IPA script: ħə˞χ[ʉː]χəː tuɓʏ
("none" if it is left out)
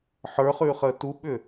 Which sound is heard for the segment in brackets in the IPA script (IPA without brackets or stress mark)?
ʉː